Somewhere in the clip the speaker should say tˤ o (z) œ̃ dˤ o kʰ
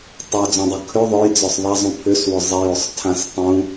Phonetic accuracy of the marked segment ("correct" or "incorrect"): incorrect